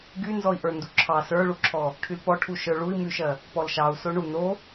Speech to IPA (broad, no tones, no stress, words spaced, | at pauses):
ɡy nzɔi̯ʔə˞nduǁʰɑ sə˞ɭuǁʰɔ | ʈʰylpɔ ʈʰuʃə˞ɭui̯ myʃɜ | pɔlʃɑu̯ soɳu no